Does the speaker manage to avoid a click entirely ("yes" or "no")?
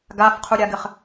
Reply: yes